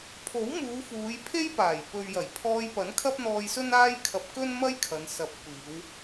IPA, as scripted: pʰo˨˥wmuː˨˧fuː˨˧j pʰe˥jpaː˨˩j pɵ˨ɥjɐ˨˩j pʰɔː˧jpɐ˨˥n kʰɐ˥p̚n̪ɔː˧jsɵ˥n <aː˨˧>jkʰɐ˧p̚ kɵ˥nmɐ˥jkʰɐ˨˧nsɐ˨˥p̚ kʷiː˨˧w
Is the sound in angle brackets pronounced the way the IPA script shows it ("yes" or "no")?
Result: no